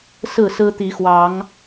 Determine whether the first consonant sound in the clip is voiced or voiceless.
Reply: voiceless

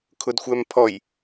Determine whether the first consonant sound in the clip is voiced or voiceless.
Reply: voiceless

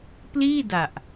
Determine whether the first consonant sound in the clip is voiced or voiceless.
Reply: voiceless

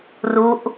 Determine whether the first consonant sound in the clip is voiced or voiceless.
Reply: voiced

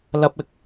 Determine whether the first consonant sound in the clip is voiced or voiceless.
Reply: voiced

